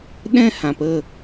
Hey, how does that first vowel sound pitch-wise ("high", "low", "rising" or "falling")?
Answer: high